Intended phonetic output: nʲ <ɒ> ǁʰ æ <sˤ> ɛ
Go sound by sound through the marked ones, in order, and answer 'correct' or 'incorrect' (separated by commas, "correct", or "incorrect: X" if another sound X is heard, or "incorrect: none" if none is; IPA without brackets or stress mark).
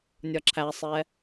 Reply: correct, correct